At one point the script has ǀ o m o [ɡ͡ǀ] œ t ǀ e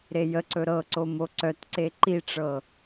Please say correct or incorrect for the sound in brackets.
incorrect